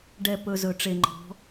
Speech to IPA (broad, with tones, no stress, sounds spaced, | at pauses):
ɖ ɛ˦˨ p ɵ˧ z ɵ˨ ʈ͡ʂ e˨ ŋ͡ǃ ɔ̤˨˦